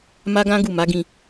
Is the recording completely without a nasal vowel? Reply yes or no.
no